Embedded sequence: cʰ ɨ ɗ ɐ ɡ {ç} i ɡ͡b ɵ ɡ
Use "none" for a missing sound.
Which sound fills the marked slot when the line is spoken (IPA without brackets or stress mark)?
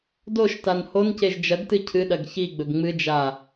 ç